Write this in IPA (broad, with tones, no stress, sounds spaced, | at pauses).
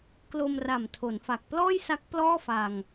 k l o˧ m r a˨˩ m tʰ o˩˦ n f a˨˩ k̚ p l ɔː˥˩ j s a˦˥ k̚ p l ɔː˥˩ f a˧ ŋ